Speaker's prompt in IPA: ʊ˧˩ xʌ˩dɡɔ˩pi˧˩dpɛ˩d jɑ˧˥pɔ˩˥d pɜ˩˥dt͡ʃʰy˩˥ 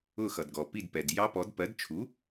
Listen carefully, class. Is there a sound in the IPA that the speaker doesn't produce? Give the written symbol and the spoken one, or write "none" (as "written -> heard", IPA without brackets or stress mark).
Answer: y˩˥ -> u˩˥